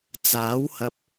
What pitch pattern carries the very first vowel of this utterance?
rising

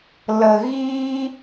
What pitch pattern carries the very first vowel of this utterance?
low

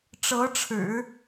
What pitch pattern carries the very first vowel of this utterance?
rising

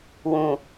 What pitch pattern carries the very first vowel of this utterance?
low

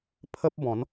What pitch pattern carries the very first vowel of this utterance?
high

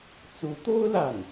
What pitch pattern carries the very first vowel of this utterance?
rising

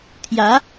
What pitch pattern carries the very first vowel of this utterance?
rising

